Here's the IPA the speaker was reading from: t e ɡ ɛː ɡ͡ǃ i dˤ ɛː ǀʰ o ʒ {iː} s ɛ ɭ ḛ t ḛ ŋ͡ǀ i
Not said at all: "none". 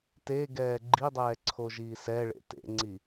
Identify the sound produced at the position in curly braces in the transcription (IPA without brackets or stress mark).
iː